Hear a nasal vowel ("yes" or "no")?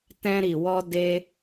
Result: yes